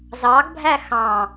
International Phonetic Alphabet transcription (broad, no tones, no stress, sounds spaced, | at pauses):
z ɑ ɡ bʱ æ x ɑ̃